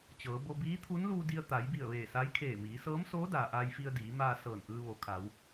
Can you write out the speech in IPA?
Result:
t͡ɕɤː˩˧bo˧ biː˧˥t̪ʰu˧˥n luː˧di˧ə̯ t̪a˩˧jbi˧˩ə̯ ʋeː˧˩sa˧˥jkʰeː˧˩ miː˩˧sɤː˧˥m soː˧˥daː˩ ʔaː˧jfi˧ə̯diː˩˧maː˧ sɤː˧˩nʔɯː˧ ʋo˩˧kʰa˩˧w

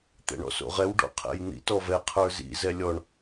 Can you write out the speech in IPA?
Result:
t̪ɛ̰ɳɔ̰so̰ʁɛw ɖɔ̰qʰɛ̰jn̪ḭt ɔvɛ qʰə˞zḭ zɛlʲɔɳ

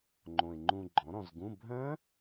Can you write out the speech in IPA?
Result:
ŋ͡ǃõ˨˩ɪ̯ŋ͡ǃũ˧ɡ͡ǃɔ̃˩˥ ɾɔ̃˧zɡũ˧˥˧ bʱœ̃˦˥

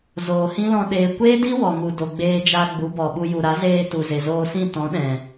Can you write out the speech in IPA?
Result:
zoː˨hĩ˦lɔ̃˧ ɗeː˨kʷeː˦di˦ wɔ˨ŋu˨ do˨ɡ͡beː˧d͡ʒa˧ ɡ͡bu˨˦bɔ˨ɓu˧ ju˨ɾa˨˦zeː˧ tu˨ze˨zoː˧sĩ˦˨ tɔ̃˨˦ɗɛ̃˨

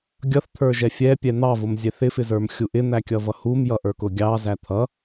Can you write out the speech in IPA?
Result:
ɡʲʌθt̪ʰə˞ʒɛ fʲɛpʲɛ n̪ɑvʊmzʲɛθ ɪfɪzə˞mxʲu ʔɪn̪ækʲʌvʌ humjʌʔə˞kʊ ɡʲɑzæ t̪ʰʌ

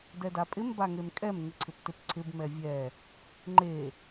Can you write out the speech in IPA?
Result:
dɛdapʼɪm baŋemkʼɛm ŋɪǀʰɪptɪpǀʰɪb mɛvʲɛ | ŋ͡ǃe

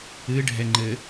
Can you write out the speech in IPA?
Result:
ɨɖʱɛŋ͡ǃɘ

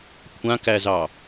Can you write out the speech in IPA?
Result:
kʷʰãkæzɑ

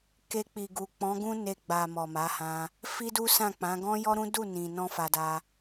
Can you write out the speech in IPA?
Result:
ke˧k͡pi˨ɡu˨ k͡pɔ̃˨˦ɡũ˦ne˧ɡ͡ba˨ mɔ˨ma˨˦hã˧ | fi˦du˦sã˦˨k͡pã˨˦ ɡɔ̃˦jɔ˦ɾũ˦ du˦˨nĩ˨nɔ̃˧ fa˧da˧

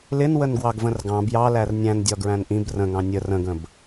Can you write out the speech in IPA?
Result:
lɪn wənɡwɑɡvə̃rɡɑ̃ bjɑlær nʲæ̃ndʲɒ ɡɹæ̃nʔĩb rə̃ŋɑ̃ nʲə rə̃ɡə̃b

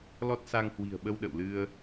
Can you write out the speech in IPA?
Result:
lɔ˦˥t̚sa˧ŋhwi̤˨˩ə̯ɓə˧w ɗə̰˧˨wlɨ˧ə̯

